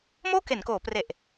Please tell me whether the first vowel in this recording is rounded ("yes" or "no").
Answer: yes